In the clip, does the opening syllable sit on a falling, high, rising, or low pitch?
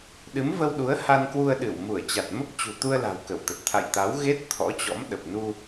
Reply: rising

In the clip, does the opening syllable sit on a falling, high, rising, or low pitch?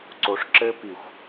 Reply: low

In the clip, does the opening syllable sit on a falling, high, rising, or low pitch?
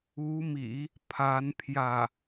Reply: rising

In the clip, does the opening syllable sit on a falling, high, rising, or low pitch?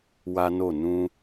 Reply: high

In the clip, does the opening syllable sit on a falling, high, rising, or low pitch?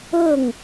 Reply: falling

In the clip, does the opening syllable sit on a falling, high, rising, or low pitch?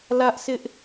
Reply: high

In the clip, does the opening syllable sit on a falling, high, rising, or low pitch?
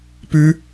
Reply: high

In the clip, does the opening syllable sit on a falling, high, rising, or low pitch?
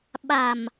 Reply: low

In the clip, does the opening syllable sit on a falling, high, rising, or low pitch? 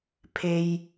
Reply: high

